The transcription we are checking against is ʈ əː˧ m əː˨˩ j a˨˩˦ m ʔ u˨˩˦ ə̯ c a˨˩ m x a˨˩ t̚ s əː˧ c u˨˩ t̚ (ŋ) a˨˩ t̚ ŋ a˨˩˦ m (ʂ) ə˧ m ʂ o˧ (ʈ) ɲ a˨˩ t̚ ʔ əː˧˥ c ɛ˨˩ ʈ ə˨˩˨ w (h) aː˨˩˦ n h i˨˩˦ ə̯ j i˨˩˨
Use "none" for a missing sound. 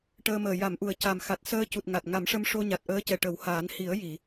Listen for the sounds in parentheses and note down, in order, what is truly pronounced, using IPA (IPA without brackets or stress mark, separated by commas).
ŋ, ʂ, none, h